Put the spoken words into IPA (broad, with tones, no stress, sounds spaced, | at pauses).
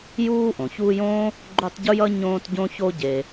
j uː˦ ʔ õ˩ ç uː˦ j õː˥ | ɡ͡ǃ u˦ tˤ ɟ u˥ j ʌ˥ ɲ õː˦ t ɟ õ˥ ç o˦ ɟ e˨